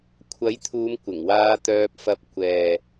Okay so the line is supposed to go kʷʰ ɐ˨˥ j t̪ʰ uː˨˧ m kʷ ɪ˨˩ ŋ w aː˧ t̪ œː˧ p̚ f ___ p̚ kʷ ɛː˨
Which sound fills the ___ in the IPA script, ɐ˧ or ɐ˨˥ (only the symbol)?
ɐ˧